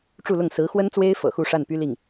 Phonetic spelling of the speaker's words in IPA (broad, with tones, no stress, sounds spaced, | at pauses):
ʈ͡ʂ u˥˧ l ʊ˥˩ ŋ s ɹ̩˧˥ x w ə˥ n t͡s w e˥ ɪ̯ f ɤ̰˨˩ x u˥˧ ʂ a˥˩ n p y˥ l i˥˩ ŋ